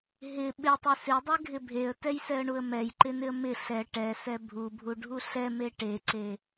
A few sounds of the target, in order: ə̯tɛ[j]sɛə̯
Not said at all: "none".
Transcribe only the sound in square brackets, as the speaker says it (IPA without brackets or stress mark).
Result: j